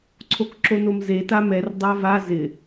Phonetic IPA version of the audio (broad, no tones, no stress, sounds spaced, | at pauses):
ǀʰ o k ǁ o n o m z e t a m ɛ r dˤ a v a z ɪ